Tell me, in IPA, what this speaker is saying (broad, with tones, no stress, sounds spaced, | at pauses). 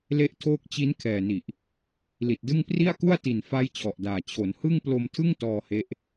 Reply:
l e˦˥ ʔ tʰ oː˦˥ k̚ t͡ɕ i˦˥ n kʰ ɛː˨˩ n i˨˩ ʔ | l i˨˩ t̚ d ɯ˥˩ ŋ p r i˥˩ a̯ k u˥˩ a̯ t i˨˩ n f a˦˥ j t͡ɕʰ ɔ˨˩ ʔ d aː˨˩ t͡ɕʰ o˩˦ n h ɯ˥˩ ŋ p l o˧ m tʰ ɯ˥˩ ŋ t ɔː˧ h e˦˥ ʔ